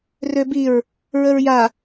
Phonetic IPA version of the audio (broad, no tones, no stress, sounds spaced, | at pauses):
r ø b i ɹ | ɹ ə ɹ j a